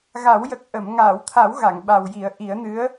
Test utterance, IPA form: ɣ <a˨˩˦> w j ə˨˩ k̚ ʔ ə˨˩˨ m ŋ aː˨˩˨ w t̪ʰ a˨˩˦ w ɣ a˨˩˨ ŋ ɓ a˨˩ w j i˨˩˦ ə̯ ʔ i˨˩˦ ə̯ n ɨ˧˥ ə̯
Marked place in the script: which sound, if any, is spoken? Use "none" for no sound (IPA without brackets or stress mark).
a˨˩˦